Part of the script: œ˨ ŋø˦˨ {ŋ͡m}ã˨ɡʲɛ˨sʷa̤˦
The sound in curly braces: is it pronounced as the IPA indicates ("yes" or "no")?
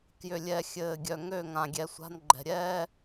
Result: no